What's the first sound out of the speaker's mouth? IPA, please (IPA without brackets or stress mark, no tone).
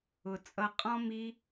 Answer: ʊ